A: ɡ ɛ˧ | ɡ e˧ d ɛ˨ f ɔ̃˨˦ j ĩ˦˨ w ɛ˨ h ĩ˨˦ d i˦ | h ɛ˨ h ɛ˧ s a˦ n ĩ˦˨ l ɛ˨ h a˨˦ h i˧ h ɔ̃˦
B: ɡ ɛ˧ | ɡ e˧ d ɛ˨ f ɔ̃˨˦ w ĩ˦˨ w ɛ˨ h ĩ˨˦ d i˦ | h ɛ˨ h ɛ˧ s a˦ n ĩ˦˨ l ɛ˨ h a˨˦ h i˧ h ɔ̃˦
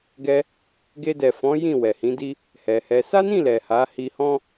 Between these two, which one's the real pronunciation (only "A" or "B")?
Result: A